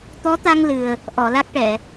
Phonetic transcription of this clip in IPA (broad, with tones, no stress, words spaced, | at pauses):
t̪ɔ˧˥t̪a˧ŋ lɨ˨˩ə̯ | ʔɔ˨˩˨la˦˥k̚ʈɛ˨˩˨